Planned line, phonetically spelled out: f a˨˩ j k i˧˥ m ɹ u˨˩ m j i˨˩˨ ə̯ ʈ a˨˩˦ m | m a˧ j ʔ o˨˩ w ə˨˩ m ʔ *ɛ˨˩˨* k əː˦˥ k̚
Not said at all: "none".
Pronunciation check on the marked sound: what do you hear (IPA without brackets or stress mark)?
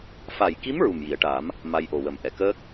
ɛ˨˩˨